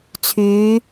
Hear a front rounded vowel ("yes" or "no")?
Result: yes